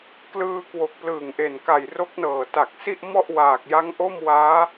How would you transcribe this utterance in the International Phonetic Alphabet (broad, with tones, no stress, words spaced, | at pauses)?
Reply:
klɯː˧kwo˨˩k̚ plɯː˨˩ŋʔe˨˩n ka˨˩j ro˦˥k̚nɤː˨˩ ta˨˩k̚si˥˩ʔmɔ˥˩ʔ waː˨˩k̚ja˦˥ŋʔo˥˩mwaː˦˥